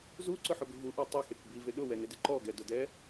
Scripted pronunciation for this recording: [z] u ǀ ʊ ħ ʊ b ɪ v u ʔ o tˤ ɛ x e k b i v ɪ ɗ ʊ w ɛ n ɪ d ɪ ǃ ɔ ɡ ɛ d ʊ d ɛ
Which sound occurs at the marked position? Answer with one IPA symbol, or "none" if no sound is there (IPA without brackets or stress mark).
z